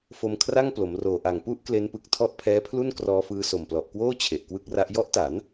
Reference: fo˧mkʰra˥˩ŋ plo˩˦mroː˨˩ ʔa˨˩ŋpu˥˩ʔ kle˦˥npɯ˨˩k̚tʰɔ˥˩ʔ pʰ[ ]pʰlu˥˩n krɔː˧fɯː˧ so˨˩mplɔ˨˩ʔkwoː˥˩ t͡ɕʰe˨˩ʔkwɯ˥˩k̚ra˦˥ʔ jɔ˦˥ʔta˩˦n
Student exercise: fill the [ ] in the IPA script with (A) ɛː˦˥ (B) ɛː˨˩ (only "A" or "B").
A